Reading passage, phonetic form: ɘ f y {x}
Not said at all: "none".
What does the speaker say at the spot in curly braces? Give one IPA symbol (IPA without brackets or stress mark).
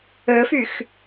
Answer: x